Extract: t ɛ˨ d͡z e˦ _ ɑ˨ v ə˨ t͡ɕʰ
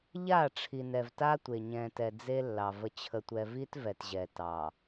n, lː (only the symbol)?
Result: lː